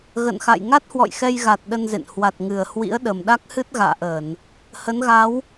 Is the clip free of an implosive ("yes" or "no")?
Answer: no